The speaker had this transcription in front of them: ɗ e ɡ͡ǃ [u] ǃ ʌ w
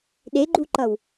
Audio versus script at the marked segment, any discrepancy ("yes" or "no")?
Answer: no